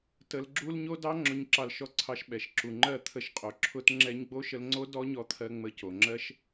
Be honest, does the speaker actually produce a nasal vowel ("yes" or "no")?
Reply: no